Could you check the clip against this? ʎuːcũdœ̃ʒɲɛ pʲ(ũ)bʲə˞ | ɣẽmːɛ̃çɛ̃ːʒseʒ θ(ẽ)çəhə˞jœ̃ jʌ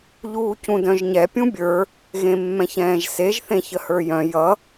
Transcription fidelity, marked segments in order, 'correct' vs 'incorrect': correct, correct

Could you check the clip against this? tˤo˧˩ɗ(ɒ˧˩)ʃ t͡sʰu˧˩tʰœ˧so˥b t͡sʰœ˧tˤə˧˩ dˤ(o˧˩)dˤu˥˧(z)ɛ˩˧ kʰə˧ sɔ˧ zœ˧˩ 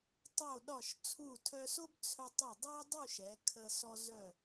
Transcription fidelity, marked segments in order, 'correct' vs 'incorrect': correct, incorrect: o˥, incorrect: ʃ

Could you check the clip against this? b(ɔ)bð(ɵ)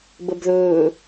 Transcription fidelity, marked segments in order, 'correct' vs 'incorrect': incorrect: ə, incorrect: ɵː

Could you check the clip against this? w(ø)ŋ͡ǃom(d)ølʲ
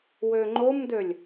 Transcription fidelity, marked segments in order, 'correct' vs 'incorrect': correct, correct

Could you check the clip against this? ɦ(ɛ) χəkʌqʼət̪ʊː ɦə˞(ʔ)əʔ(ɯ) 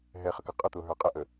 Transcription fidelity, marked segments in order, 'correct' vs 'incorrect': correct, incorrect: qʼ, incorrect: ə

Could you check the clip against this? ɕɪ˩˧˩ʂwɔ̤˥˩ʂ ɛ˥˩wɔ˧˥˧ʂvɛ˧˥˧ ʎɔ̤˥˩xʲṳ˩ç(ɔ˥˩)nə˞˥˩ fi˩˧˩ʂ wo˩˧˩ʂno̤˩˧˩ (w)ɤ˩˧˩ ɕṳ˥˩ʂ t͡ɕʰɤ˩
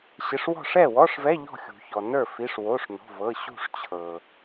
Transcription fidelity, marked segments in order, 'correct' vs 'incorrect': incorrect: ɔ˩, incorrect: v

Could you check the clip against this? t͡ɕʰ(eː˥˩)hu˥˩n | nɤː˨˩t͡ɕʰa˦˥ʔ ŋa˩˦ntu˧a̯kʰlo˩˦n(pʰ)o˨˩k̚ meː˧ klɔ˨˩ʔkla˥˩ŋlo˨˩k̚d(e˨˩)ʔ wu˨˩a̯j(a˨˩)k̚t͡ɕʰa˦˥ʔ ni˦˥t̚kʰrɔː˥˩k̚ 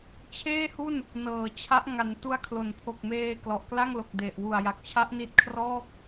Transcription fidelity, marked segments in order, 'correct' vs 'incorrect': correct, correct, correct, correct

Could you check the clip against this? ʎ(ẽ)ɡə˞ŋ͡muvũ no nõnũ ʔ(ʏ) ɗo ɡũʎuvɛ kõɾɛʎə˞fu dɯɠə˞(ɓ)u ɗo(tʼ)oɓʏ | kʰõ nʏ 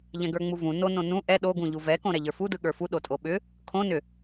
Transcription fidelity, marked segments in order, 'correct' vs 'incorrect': incorrect: ɛ̃, incorrect: ɛ, incorrect: f, correct

